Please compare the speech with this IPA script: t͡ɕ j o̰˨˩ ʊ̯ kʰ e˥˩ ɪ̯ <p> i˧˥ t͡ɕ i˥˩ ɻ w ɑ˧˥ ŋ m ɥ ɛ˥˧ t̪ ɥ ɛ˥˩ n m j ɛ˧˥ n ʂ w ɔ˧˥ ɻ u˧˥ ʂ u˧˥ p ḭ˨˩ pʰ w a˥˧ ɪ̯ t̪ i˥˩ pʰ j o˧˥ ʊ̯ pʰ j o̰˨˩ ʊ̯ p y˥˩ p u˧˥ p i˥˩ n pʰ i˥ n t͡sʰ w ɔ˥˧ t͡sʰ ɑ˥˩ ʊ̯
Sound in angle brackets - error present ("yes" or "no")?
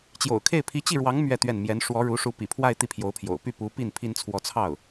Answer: yes